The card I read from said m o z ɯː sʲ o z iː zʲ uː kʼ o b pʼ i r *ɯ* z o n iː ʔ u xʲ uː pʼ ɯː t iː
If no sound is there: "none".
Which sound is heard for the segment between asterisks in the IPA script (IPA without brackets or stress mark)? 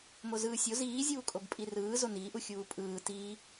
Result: ɯː